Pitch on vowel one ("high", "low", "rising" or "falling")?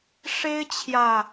high